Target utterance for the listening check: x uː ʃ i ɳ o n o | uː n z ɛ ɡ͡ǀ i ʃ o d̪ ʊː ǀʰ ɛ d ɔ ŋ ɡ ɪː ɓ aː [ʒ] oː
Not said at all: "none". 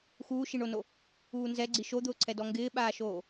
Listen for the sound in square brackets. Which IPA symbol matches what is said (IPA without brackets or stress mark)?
ʃ